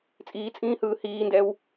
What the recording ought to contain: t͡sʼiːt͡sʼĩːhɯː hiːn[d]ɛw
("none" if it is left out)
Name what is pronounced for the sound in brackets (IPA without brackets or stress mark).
d